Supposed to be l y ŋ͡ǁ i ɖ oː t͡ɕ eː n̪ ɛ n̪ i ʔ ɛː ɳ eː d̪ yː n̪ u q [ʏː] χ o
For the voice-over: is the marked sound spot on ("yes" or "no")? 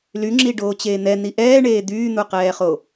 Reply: no